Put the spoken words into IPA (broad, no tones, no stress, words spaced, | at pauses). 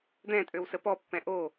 d̪ɛ̃tʼøw səpɔpːɛ̃ ʔo